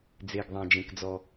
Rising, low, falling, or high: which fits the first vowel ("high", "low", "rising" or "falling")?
low